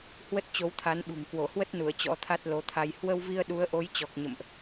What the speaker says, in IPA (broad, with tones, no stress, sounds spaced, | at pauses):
h w ə˦˥ t̚ t͡ɕ o˨˦ w t̪ʰ a˨˦ n ɓ ṳ˨˩ ŋ k w o˧˩ h w ə˦˥ t̚ n u˧˩ ə̯ t͡ɕ ɔ̰˧˥ t̪ʰ a˦˥ t̚ l o˨˦ t̪ʰ a˧ j h w ə˧ w v i˧ ə̯ ɗ u˨˦ ə̯ ʔ o˨˦ j t͡ɕ ɔ˨˩ k̚ ɲ ə̰˧˨ m ʔ